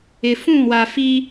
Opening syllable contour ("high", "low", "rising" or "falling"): low